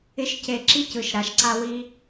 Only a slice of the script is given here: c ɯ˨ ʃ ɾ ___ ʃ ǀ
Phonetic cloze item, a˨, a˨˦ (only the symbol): a˨˦